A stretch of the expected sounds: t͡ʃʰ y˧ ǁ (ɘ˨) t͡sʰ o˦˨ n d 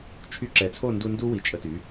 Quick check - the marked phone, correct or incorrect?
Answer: incorrect: ɛ˨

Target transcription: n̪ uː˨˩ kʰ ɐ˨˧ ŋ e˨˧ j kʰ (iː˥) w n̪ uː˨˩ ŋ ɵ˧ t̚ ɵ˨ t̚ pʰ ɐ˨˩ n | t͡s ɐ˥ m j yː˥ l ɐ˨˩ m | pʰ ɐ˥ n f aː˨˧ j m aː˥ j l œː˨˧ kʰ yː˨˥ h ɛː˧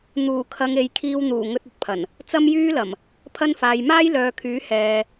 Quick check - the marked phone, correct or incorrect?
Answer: incorrect: iː˧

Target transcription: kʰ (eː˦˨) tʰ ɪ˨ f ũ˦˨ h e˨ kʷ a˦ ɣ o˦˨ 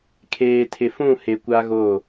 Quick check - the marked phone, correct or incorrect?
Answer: incorrect: eː˨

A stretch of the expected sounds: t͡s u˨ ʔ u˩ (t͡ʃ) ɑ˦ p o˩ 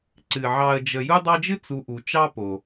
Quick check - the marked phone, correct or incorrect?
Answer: correct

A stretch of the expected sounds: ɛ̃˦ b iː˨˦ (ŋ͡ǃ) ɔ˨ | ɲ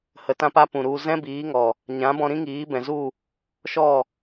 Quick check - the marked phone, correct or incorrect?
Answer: incorrect: ŋ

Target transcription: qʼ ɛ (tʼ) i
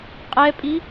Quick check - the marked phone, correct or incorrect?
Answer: incorrect: pʼ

